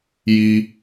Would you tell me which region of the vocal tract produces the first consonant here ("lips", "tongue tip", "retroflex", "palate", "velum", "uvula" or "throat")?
palate